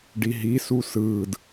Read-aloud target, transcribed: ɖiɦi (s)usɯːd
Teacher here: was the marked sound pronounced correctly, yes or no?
yes